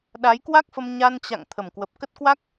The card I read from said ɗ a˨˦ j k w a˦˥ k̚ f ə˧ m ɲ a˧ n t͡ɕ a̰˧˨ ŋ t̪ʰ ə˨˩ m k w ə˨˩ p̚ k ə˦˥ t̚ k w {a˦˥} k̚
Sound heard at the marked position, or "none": a˦˥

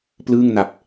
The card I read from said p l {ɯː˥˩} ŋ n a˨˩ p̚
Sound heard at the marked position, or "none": ɯː˥˩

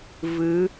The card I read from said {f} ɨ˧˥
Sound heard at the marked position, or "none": v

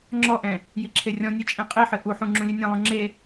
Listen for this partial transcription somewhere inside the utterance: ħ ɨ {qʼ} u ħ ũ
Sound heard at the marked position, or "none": ʔ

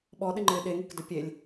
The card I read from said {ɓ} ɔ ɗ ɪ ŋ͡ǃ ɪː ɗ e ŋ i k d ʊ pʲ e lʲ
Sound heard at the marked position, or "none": ɓ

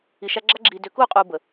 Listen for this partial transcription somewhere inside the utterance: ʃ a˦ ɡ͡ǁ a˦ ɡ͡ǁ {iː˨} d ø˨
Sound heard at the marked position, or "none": iː˨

